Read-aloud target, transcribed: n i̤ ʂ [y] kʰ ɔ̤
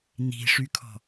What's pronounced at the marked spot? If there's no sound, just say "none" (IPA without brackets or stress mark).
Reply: y